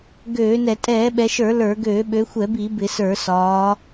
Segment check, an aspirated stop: absent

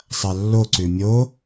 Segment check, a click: present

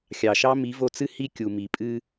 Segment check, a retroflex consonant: absent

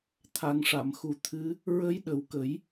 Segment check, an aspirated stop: present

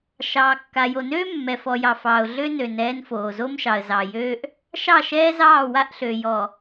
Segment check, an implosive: absent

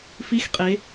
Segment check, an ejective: present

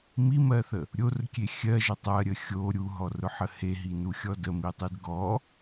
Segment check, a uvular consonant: absent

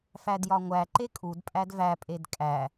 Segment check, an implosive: absent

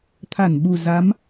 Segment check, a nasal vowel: absent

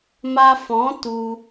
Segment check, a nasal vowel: present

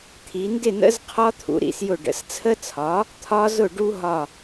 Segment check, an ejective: absent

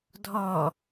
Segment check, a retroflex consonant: absent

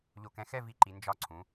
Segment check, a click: present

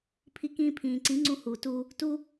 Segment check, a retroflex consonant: absent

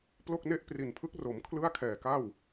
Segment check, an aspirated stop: present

